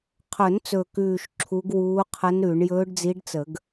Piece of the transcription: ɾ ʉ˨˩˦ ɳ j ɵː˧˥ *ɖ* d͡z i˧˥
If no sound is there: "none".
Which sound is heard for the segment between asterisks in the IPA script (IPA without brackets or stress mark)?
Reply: ɖ